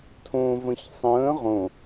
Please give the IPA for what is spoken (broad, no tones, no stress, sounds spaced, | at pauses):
tʰ õ v ə̃ ç sˤ ə̃ː ʁ õ